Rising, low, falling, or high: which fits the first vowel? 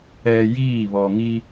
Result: low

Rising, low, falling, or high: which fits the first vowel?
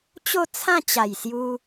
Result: falling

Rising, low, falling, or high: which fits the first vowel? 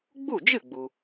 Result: falling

